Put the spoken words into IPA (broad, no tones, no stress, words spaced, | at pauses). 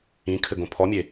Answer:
ĩkʰɘɡõ pʰɔmʲe